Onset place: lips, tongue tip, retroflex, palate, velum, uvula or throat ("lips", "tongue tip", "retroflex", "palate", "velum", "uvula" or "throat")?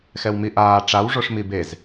velum